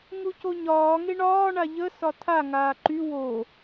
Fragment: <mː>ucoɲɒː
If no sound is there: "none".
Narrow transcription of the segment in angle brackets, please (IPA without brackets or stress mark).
ŋ